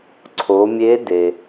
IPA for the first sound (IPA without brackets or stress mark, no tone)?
ǀʰ